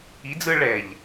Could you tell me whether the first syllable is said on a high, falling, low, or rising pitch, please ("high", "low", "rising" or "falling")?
rising